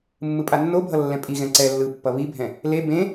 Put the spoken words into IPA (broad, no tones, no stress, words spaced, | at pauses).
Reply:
mːɯpʼanːobʱʌ lːɛ̃pʼiɣɛ̃ ǀɛ lːɯpːʌ βibʱɛ̃ | le bẽ